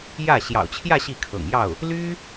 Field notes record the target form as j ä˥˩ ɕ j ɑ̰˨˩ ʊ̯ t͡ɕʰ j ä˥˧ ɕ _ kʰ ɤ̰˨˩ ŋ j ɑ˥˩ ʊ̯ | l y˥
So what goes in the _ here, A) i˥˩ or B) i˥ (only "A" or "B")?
A